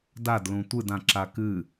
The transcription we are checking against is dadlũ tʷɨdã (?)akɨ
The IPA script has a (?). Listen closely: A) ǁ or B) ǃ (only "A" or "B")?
A